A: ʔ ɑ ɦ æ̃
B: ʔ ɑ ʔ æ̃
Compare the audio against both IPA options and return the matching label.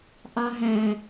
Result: A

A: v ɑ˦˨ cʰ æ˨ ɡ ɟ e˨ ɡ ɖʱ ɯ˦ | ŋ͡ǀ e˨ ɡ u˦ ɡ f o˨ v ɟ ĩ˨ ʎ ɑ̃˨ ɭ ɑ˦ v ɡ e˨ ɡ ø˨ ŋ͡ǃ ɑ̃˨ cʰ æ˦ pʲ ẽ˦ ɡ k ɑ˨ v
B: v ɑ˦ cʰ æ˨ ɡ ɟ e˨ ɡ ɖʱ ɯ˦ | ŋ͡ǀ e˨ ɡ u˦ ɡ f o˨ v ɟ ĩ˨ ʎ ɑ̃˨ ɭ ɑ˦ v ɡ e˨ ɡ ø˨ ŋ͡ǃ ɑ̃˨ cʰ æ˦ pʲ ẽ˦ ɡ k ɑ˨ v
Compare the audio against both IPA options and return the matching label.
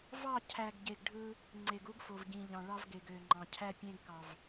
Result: A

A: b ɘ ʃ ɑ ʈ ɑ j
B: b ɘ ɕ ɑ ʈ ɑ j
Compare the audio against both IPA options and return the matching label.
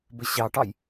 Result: B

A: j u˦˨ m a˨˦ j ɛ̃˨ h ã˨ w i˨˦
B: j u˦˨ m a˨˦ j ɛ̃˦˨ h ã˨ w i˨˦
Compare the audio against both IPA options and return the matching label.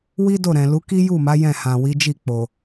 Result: B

